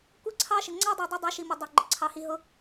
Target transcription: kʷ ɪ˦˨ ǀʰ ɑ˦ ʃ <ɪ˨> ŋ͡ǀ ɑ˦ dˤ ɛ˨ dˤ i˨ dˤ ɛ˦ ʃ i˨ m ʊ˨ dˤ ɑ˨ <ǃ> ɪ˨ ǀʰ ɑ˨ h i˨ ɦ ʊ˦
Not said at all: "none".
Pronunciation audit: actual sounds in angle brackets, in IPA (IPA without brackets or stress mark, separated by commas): ɪ˨, ɡ͡ǃ